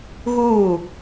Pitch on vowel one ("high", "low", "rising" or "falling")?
falling